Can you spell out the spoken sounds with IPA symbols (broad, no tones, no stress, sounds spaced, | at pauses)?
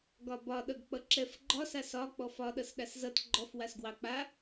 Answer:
ɡ ɒ b ɒ ɗ ʌ ɡ k͡p ʌ ǁ ɛ f ɡ͡ǃ ɒ s a s ɒ k͡p ɔ f ɒ ɗ ʌ s ɗ a s z ʌ t ɡ͡ǃ ɔ f w a s ɡ w ɑ k͡p a